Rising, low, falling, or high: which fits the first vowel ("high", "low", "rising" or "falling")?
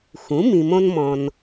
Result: rising